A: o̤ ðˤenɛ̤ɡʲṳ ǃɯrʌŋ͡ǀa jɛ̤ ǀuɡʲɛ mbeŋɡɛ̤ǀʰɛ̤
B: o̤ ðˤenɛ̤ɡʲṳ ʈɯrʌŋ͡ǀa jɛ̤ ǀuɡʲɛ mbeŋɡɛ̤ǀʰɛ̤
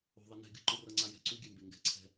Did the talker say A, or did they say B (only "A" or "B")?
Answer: A